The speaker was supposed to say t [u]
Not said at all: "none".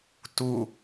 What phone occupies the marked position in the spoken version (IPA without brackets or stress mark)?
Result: u